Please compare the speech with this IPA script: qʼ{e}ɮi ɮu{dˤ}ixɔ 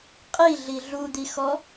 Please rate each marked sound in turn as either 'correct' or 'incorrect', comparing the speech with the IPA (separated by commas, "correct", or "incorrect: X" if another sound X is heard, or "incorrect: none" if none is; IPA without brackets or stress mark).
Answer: incorrect: i, incorrect: d̪